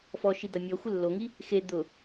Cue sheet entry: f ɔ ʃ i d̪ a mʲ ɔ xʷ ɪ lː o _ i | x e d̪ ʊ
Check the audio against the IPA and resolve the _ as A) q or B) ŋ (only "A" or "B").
B